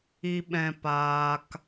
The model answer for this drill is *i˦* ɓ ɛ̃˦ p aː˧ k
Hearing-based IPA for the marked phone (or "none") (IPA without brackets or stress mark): i˦